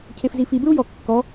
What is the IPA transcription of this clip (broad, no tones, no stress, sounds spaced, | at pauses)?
cʰ e f z i f i b ɹ u j ɔ kː ɔ